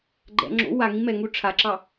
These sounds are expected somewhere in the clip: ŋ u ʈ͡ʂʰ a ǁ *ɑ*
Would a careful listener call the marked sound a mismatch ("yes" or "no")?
no